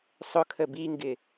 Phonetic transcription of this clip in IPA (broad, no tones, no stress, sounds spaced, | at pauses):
sˤ ʊ kʰ ə b i ŋ ɡ ɪ